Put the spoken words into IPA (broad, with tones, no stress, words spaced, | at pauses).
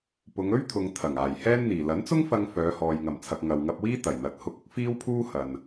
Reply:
pʊ˨˧ŋɵ˥ɥt̪ʰʊ˨ŋ t̪ʰɐ˨˩ŋ aː˨˩j hɛː˥nn̪iː˨˩ lɐ˨˥nt͡sʊ˥ŋfɐ˧ŋ fœː˨˧hɔː˨j ŋɐ˨˩mt͡sʰɐ˨k̚ ŋɐ˨wŋɐ˧p̚wiː˥ t̪ɐ˨˩jn̪ɐ˨˥t̚ hʊ˧k̚ʊ˥k̚ fiː˥wpʰuː˥ hɐ˨n